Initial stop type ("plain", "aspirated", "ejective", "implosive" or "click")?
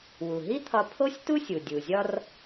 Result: aspirated